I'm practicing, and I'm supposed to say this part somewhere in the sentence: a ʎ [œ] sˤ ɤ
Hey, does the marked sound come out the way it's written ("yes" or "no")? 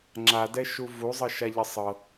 no